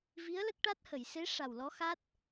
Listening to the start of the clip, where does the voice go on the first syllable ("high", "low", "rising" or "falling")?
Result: rising